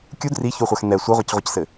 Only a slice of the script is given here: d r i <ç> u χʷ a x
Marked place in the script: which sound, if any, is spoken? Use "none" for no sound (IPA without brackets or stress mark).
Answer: ç